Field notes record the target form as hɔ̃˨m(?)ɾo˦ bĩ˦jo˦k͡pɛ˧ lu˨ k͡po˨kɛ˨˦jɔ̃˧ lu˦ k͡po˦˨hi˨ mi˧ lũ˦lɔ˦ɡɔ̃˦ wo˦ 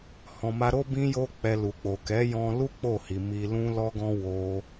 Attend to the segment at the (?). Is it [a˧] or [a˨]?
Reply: a˧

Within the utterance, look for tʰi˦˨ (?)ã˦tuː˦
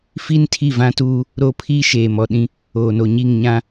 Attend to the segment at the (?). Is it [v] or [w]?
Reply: v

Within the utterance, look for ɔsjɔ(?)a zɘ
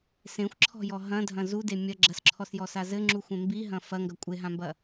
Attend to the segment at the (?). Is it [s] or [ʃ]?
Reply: s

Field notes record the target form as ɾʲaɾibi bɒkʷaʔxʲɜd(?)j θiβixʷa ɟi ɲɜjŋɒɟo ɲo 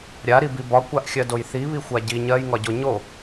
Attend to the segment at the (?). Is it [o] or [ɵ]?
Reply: o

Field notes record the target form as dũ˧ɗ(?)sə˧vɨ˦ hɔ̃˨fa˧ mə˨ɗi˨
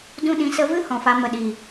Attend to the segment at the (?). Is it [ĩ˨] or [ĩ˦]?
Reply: ĩ˨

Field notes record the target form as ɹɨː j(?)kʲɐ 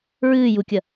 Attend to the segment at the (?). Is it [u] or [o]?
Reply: u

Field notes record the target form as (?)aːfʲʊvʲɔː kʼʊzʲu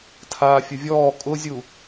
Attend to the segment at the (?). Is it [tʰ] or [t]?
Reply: tʰ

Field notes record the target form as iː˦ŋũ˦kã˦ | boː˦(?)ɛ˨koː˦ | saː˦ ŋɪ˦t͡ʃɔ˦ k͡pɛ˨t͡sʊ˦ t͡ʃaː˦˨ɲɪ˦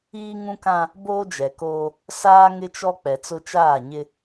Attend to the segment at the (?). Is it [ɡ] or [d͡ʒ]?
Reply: d͡ʒ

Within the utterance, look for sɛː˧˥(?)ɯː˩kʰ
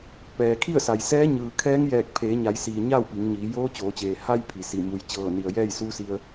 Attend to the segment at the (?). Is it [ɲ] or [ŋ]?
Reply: ɲ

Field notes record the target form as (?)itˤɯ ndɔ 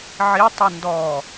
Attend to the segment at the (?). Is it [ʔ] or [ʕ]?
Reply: ʕ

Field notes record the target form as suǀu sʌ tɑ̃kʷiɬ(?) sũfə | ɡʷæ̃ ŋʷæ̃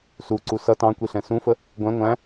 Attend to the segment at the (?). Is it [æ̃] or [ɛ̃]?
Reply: ɛ̃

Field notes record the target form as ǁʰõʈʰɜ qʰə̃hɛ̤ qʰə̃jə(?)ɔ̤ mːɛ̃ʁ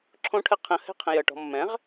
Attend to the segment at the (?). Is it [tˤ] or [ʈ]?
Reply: ʈ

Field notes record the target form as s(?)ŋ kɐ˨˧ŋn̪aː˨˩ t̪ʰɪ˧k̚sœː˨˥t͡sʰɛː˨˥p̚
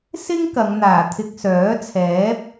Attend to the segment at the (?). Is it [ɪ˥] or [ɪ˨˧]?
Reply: ɪ˥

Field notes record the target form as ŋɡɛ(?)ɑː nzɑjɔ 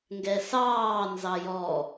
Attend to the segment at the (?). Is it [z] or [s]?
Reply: s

